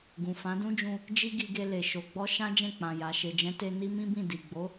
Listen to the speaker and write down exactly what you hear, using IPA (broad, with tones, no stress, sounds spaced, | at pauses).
ɡ ũ˨ f ã˨˦ d ũ˦ d͡ʒ ũ˧ | d͡ʒ i˦ ɡ i˧ ɡ e˧ l e˨ ʃ o˨ ɡ͡b ɔ˧ ʃ ã˦ d͡ʒ ɛ̃˦˨ k͡p ã˨ j a˨ ʃ e˨ d͡ʒ ɛ̃˨˦ t e˧ n i˦ m ĩ˦ b ĩ˦˨ d i˨ ɡ͡b o˨˦